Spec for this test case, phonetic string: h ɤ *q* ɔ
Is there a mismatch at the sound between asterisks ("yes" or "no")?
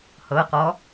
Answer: no